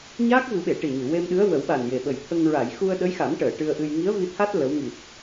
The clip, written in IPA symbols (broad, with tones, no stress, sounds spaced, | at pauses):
ɲ aː˦˥ k̚ v ɨ˨˩˦ ɓ e˨˩˨ ʈ i˨˩ ɲ ɨ˨˩˨ w e˧ m ɗ ɨ˧˥ ə̯ w ə˨˩˦ w ɓ a˨˩ n j e˨˩ ɓ ə˨˩ j t̪ʰ ə˧ ŋ ɹ a˨˩˨ j x u˧ ə̯ ɗ ə˧˥ j x a˨˩˦ m ʈ əː˨˩˨ ʈ ɨ˧ ə̯ ʔ ɨ˧ j ŋ i˧˥ ə̯ v i˧ t̪ʰ a˦˥ t̚ l ə˧˥ w ŋ i˨˩ t̚